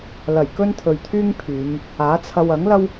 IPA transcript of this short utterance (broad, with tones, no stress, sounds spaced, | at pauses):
l ɐ˨˩ j k ɵ˥ n t̪ʰ ɵ˨ ɥ t̪ʰ yː˥ ŋ pʰ yː˨˧ m | aː˨˥ t͡sʰ ɐ˧ w ɐ˨˥ ŋ l ɐ˥ w